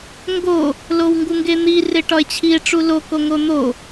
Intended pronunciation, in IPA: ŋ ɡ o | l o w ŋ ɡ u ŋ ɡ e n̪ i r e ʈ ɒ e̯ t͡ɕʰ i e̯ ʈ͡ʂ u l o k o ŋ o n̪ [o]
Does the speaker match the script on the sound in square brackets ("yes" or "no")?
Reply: yes